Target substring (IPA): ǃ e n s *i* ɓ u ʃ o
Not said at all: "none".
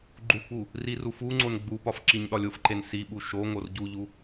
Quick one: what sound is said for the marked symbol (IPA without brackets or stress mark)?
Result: i